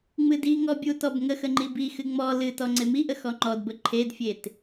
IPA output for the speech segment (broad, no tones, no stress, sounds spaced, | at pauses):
ŋ͡m ɨ d i ŋ ɔ bʲ u t ɔ b ŋ ə x ə ŋ͡ǃ i b i x ɨ ŋ͡m ɔ l ɨ t ɔ ŋ͡ǀ e m i ʔ ə x ɔ ŋ͡ǃ ɔ d b ə ǃʰ e d fʲ e t